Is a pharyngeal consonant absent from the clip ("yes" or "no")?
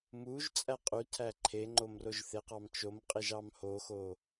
yes